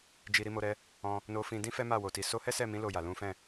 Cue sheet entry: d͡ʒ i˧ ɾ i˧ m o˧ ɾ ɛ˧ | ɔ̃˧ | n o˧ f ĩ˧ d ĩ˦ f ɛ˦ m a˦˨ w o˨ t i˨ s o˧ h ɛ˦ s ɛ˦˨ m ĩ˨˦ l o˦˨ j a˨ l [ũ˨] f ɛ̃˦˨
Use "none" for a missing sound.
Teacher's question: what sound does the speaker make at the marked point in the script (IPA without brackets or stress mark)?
ũ˨˦